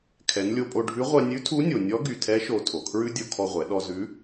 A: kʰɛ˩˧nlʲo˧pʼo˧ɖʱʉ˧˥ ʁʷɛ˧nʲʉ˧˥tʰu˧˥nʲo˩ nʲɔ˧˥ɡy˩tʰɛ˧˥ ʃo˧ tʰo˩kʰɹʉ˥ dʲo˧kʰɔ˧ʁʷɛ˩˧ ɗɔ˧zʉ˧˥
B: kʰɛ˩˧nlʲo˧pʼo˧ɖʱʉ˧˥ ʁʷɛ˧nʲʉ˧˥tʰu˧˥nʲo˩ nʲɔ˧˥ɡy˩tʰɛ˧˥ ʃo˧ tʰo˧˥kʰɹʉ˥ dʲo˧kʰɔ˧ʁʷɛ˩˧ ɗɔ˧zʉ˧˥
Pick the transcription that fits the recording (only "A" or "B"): A